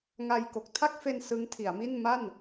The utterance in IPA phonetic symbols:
ŋ a˧ j k o˨˩ k̚ tʰ a˥˩ k̚ f e˧ n s ɯ˦˥ ŋ tʰ i˩˦ a̯ m i˥˩ n m a˥˩ n

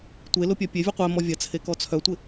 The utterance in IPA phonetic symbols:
tʷ e l ʊ pʲ œ pʲ e vʲ ɔ qʷ ɛ m ɔ vʲ ɐ t͡sʰ e k ɔ t͡sʰ œ tʷ ɪ

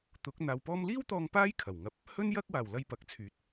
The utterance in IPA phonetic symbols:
t̪ ʊ˨˥ k̚ n̪ aː˧ w p ɔː˥ m l iː˥ w t̪ ɔː˧ ŋ p aː˥ j kʰ ɐ˨˩ w ŋ ɐ˧ p̚ | h ɵ˥ n j ɐ˧ k̚ w aː˨˩ w l ɐ˧ j p ɐ˨˥ k̚ t͡sʰ yː˨˥ t̚

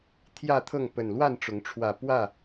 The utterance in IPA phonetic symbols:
t̪ʰ j ä˥˨ t̪ʰ ɤ˥˨ ŋ p ə˨˩ n l w a˥˨ n ʈ͡ʂ ʊ˨˦ ŋ ʈ͡ʂʰ w ä˨˩ p w ä˥˨

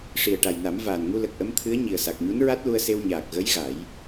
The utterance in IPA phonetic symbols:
ʂ i˨˩ ə̯ ʈ a˨˩ j n a˨˩˦ m v aː˨˩ n ŋ u˧ l ə˨˩ k̚ ʔ ə˧˥ m t̪ʰ ɨ˧˥ ə̯ ɲ i˨˩ ə̯ s a˨˩ k̚ ɲ u˧˥ n ɹ a˦˥ t̚ l u˧ ə̯ s e˧ w ɲ aː˨˩ k̚ ɣ ə˧˥ j ɣ a˨˩˦ j

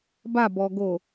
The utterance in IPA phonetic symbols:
b a b ɔ ɡ o

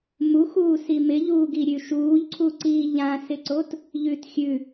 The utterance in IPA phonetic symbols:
m u x uː s i m ɪ ʎ uː ɡ i ɾʲ ʉ ʃ uː ʎ ǀʰ u ǀ iː ʎ ã s ɪ ǀ o t | ʎ ʉ t xʲ ʉ

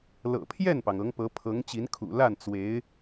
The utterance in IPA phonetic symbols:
l ɤ̰˨˩ pʰ j ɛ˥˩ n p ɑ˩ ŋ ɤ˧˥ ŋ p ɤ˧˥ pʰ ɤ˧˥ ŋ t͡ɕ i˧˥ n kʰ ṵ˨˩ l a˥˩ n t͡s w e˧˥ ɪ̯

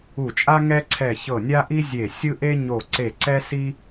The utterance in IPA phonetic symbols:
u˧˩ t͡ʃʼ a˥ ŋ ɛ˥ ǀʰ ɛ˧˩ ç ɤ˧˩ nʲ a˥ ʔ i˥ zʲ e˧˩ sʲ ɯ˥ ʔ e˥ ɲ o˧˩ ǀ e˧˩ ǀ ɛ˥ s i˥

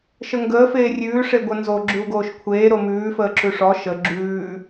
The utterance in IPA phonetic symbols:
ʃ ə ŋ ɡ əː f eː rʲ ʉː ʂ e ɡʷ ə n z o ɡ͡ǁ ʉ u̯ ɡ oː ʃ kʷʰ eː ɾ o m ʉː f əː ǁ ʉ ʂ ɔ ʃ ə ɡ͡ǁ ʉː

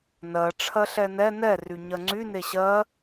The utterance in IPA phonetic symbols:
n ɜ ʈ͡ʂʰ ɜ ɬ ɛ n ɛ n ɛ r y ɲ ɜ ŋ͡ǀ y n e ɕ ɜ

